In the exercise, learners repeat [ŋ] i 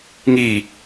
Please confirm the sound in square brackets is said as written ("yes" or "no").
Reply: yes